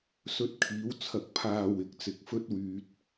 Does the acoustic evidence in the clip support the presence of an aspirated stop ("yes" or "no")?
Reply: yes